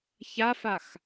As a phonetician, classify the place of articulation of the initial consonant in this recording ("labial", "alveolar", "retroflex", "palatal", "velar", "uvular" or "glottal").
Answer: palatal